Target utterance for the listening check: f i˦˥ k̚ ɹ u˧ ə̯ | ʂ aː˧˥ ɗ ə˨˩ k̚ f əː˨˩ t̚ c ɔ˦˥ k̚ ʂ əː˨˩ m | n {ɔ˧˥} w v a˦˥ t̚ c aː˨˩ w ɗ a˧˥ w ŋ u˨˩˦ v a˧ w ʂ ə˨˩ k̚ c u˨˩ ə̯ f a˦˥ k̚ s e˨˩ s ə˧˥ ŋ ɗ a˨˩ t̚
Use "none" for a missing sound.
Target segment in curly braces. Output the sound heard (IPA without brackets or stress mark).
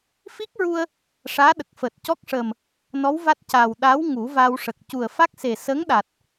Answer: ɔ˧˥